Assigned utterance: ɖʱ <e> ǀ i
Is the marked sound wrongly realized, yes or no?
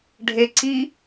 no